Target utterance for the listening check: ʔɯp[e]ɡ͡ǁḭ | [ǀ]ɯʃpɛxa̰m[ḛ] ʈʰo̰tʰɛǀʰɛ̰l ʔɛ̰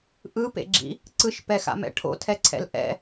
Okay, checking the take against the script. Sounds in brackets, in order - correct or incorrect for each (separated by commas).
incorrect, correct, incorrect